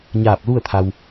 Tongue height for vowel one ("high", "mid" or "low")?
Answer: low